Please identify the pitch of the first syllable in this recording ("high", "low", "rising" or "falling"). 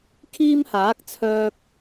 high